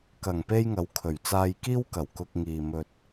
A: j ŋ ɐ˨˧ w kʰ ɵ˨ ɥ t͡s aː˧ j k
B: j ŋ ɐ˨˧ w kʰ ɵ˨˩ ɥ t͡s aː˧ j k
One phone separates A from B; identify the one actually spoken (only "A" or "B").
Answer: B